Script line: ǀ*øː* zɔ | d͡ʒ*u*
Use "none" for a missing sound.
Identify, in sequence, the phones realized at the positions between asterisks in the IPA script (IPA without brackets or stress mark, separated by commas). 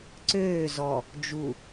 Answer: øː, u